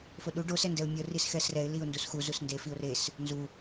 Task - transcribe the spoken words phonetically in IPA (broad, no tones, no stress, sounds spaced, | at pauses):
f o ɗ u ɖ o s ɛ n d ɛ ʊ̯ mʲ ɤ r i s x ɛ s r ɛ ɪ̯ l i ʊ̯ n d u s x u z u s n d e f i ʊ̯ r e s | n z u